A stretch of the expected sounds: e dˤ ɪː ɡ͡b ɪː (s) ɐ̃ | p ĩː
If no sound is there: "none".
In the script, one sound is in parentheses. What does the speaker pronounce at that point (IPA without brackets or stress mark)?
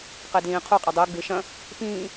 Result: ʃ